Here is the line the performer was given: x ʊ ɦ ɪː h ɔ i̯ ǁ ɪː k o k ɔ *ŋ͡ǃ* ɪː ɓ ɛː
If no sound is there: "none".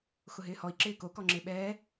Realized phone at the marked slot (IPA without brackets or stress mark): ŋ͡ǁ